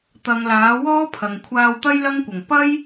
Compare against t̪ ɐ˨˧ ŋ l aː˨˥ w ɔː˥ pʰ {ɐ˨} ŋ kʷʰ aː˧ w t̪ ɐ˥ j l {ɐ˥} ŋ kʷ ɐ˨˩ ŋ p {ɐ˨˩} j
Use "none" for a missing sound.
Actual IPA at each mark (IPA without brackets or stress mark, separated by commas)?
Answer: ɐ˨, ɐ˥, ɐ˥